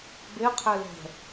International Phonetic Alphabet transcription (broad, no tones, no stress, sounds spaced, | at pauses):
b e qʰ ɛ l ɛ̤